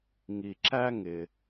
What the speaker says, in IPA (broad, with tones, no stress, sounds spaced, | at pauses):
ŋ i˩ ǁ æ˥ ŋ ɪ˩